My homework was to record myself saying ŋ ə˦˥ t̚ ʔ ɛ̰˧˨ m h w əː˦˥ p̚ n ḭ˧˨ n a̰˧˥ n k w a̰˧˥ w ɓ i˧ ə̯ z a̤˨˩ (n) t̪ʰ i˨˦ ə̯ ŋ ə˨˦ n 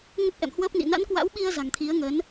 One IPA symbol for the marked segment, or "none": ŋ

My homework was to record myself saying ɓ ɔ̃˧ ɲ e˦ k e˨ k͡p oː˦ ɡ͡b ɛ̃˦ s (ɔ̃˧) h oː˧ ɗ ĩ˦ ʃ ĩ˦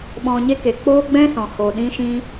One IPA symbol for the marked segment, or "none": ɔ̃˨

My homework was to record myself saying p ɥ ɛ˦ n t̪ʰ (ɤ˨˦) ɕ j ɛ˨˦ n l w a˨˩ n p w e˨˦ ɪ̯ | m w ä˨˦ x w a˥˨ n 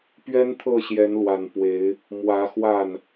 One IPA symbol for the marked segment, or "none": ɤ˥˨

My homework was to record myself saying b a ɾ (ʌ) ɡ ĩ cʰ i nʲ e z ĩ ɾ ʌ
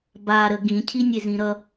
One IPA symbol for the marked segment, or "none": ə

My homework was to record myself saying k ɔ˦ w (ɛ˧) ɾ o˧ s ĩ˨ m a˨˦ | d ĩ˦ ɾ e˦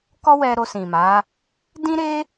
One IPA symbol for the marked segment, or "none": ɛ˧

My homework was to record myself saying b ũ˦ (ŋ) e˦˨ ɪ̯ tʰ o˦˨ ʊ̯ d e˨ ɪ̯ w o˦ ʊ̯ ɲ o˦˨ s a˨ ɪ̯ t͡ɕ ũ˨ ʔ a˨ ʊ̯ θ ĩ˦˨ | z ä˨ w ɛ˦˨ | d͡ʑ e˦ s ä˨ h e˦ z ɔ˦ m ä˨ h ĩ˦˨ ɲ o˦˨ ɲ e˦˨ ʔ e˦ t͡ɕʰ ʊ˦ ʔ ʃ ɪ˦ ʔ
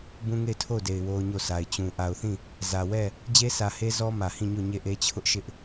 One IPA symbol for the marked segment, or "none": ŋ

